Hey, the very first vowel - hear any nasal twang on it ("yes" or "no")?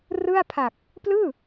no